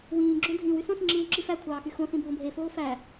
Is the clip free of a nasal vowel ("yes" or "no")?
no